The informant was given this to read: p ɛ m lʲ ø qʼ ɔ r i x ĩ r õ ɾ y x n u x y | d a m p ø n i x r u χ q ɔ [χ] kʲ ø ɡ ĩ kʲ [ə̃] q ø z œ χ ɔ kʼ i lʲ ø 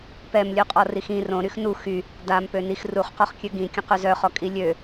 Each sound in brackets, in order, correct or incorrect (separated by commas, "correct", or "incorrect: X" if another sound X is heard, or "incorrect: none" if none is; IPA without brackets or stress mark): correct, correct